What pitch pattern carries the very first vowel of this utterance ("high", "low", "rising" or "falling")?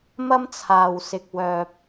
high